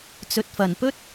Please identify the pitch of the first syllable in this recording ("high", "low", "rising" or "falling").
low